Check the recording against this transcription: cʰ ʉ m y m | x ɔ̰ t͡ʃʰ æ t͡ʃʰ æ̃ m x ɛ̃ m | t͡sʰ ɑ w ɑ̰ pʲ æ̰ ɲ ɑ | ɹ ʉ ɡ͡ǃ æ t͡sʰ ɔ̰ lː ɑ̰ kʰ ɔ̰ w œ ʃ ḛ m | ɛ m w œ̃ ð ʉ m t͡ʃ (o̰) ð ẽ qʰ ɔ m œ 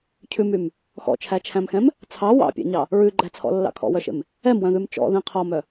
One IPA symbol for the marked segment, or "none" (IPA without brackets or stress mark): ɔ̰